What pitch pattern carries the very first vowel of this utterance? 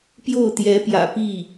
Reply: falling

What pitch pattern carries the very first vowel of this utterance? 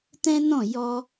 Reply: high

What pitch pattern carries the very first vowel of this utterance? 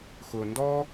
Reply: low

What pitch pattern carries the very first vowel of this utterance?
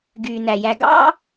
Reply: low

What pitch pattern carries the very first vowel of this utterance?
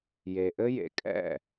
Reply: low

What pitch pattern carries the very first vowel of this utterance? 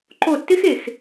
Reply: falling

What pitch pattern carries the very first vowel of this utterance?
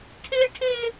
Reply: high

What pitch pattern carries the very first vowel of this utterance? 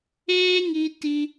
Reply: high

